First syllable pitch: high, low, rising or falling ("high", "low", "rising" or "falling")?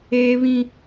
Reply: high